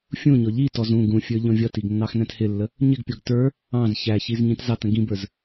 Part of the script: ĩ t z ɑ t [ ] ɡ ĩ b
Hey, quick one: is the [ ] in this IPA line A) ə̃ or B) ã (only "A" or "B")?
A